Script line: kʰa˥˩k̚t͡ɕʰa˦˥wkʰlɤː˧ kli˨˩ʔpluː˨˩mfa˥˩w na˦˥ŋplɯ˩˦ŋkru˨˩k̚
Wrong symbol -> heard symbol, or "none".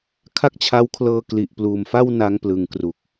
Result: none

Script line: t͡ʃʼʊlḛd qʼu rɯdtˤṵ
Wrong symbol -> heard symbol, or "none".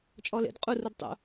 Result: ʊ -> ɔ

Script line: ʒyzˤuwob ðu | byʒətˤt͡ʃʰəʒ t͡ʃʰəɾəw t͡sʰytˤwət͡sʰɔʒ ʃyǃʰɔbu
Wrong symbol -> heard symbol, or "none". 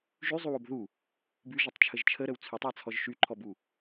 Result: none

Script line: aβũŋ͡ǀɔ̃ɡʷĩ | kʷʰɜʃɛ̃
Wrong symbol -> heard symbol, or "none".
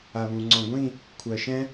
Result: none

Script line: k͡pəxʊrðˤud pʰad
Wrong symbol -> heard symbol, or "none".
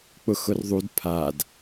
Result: ə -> ʊ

